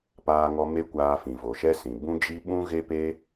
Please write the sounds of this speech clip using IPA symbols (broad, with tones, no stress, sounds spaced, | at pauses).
p aː˧ ŋ ɔ˧ m e˦ kʷ aː˧ f ĩ˨ v o˨ ʃ ɛ˦ s ĩ˨ b ũ˦ d͡ʒ i˦ ɓ ũ˦ ɣ e˦ p e˦